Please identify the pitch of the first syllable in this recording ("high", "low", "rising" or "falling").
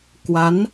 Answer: rising